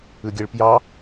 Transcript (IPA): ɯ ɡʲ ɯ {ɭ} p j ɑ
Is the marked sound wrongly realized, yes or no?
no